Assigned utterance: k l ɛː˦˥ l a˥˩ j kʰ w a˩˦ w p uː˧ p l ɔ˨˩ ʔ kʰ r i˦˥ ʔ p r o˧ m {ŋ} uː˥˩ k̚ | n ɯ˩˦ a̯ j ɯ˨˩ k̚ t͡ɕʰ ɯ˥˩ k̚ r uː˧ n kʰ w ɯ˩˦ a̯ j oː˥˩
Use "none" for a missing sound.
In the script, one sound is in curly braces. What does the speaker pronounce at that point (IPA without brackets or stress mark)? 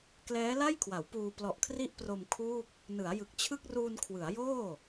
kʰ